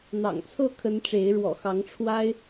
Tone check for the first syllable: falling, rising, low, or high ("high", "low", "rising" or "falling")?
low